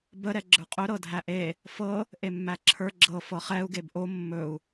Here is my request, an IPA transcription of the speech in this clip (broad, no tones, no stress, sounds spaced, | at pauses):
b ə ɾ ɛ ɡ͡ǁ ə˞ qʼ ɵ ɾ ɤ dʱ æ ʔ e | f ɤ | ʔ e mː æ ǁʰ ə˞ ɡ͡ǁ ɤ f ɤ χ ɛ u̯ ɡ e b ʔ o mː ɵ u̯